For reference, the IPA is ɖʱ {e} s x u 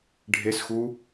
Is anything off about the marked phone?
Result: no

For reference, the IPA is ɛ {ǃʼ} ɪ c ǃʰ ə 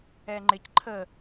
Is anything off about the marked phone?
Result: yes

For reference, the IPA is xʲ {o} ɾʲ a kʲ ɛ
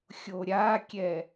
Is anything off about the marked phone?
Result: no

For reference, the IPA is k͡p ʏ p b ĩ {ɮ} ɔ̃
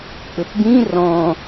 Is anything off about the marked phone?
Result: yes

